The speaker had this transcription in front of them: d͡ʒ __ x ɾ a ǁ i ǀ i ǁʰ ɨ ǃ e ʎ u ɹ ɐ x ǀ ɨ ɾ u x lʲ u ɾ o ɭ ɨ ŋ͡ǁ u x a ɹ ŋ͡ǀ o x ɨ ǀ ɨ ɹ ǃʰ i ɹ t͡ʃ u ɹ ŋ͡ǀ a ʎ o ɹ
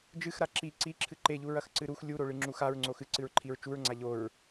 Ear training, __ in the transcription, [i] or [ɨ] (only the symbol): ɨ